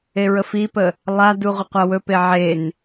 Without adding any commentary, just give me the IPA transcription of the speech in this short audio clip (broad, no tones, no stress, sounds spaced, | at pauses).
e ɹ ə f i p ə | lˠ a d u ʁʷ ə qʷ a w ɵ p e ʕ e n